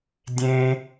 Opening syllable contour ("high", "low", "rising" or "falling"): high